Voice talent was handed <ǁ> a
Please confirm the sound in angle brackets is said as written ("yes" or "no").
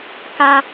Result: no